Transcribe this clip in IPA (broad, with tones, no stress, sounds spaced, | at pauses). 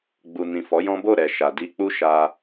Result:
ɡ͡b u˨ n ĩ˨ f ɔ˨˦ j ɔ̃˦ b o˦˨ ɾ ɛ˨ ʃ a˨ d i˧ k͡p u˦ ʃ a˧